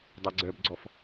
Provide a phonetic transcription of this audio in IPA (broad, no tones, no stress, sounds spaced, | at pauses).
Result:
dˤ ɛ ɡ͡ǀ œ b ɡ͡ǀ ɔ f